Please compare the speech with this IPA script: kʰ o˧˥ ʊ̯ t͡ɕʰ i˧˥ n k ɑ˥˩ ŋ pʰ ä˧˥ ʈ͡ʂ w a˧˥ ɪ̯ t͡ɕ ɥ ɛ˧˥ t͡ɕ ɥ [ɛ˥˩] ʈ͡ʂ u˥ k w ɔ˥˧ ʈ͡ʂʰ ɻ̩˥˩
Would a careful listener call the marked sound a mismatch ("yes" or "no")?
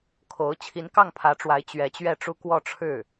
no